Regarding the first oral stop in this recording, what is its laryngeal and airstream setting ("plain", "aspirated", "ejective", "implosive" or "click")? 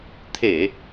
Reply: aspirated